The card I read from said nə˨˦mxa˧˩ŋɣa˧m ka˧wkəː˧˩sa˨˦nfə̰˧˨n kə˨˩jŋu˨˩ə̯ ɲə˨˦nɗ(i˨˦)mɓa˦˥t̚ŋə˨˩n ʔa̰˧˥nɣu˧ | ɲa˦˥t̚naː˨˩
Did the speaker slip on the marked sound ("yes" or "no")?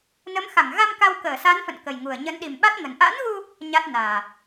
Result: yes